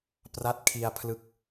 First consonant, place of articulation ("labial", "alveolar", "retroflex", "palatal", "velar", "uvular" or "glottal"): labial